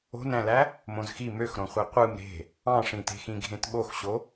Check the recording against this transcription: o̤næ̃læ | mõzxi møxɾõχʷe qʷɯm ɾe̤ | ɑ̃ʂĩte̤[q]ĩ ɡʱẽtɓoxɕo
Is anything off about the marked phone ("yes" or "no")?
yes